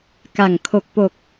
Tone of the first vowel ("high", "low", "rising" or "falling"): low